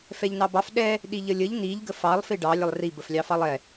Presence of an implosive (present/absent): present